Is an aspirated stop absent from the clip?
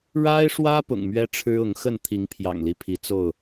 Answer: no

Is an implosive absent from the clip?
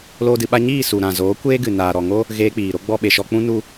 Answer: no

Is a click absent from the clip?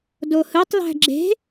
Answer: no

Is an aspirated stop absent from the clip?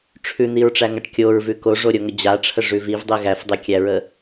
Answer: no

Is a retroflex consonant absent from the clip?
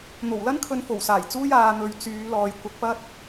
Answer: yes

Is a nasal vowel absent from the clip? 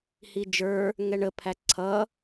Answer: yes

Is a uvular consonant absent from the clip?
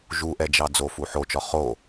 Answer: no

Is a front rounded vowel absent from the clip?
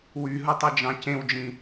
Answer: no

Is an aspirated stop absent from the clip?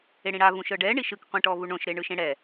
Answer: yes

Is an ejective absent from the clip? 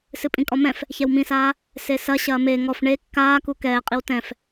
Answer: no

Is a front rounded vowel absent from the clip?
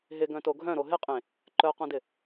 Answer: no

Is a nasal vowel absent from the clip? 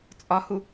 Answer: yes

